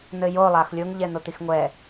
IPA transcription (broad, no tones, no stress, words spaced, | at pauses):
n̪ɘjo lˠaxlʲoŋ ʎɛn̪ot̪ixŋʷɛ